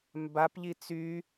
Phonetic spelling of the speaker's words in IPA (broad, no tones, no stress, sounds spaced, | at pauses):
m b a p ʎ i t͡s y